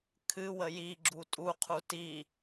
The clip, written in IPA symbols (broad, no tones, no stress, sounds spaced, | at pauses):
kʰ ɨ w ə j i ɡ͡ǁ u tʼ u qʰ u t i